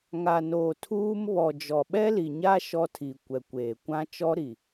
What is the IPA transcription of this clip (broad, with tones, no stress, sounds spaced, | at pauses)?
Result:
ŋ a˨ n oː˨ tʰ uː˦ m β ɔ˨ d͡ʒ ɔ˨ ɓ ɛ˦ l i˨ ɲ a˦ ʃ ɔ˦ tʰ i˨ kʷ ɛ˨ kʷ eː˨ kʷ ã˦ t͡ʃ ɔ˦ ɾ i˨